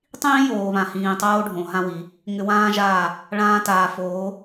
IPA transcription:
tˤ ĩː˦ j oː˨ β ã˨ h ĩː˨ tˤ oː˧ ɖʱ õ˨ ɦ ã˦ w i˨˦ | ŋ ʏ˧ w ãː˦ ʒ aː˦˨ | ɭ ãː˧ t aː˨ f oː˨˦

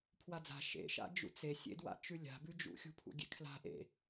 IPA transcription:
pʰ w a d͡z a̤ ʃ ḛ ʃ a̰ d͡ʒ ṵ t͡s e sʲ ḛ d w a̰ t͡ʃ ʉ lʲ a̤ b ʉ d͡ʒ ṵ xʲ ṳ pʰ ṵ ɡʲ ḛ kʰ l a̤ ʔ ḛ

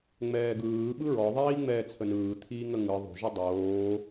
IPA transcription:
ŋ͡m ɛː ɡ ɯː ɓ ɯ ɹ ɔ ðˤ iː ŋ͡m ɛː t͡sʰ ə n ɯː t̪ʰ iː ŋ ə ŋ ɯ ðˤ o̤ ʒ ɯ dˤ oː

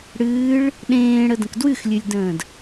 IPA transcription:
ɽ ɨː ɭ | ɗ ẽː ɽ ə d ə̃ k d w ɨ x lʲ ɨ lʲ d ə̃ː d

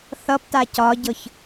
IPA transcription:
θ ʌ p t a c ɒ ɟ ɤ ç

